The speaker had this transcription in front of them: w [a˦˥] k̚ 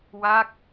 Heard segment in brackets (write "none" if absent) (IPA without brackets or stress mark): a˦˥